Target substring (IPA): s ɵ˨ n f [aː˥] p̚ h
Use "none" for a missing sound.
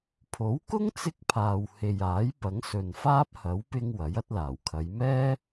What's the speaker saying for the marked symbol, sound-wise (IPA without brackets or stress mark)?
aː˥